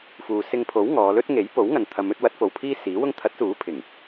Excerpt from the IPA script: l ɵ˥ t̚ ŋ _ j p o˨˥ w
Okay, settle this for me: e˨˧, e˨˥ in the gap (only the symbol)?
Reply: e˨˥